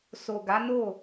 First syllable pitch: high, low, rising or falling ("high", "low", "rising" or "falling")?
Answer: low